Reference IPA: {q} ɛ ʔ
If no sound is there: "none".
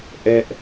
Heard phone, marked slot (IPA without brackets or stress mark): ʔ